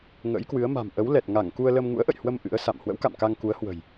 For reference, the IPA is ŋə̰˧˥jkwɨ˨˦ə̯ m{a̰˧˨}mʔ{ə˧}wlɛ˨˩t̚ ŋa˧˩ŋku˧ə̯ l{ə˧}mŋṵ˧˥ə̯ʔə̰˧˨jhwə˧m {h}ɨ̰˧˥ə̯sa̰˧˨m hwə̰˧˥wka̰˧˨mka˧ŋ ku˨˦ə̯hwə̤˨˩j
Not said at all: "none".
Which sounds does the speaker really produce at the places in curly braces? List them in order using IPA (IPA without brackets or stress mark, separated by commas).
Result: a̤˨˩, ə˨˦, ə˧, ʔ